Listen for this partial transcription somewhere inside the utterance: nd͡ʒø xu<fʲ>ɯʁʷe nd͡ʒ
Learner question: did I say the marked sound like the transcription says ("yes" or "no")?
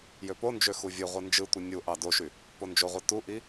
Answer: no